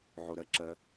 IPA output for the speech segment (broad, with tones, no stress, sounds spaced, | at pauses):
ʕ o˨ ɾ ɜ˦ ǁ ɜ˨˦